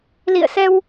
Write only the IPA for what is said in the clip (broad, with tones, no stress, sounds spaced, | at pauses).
l ḭ˧˨ ə̯ s ɛ˧ w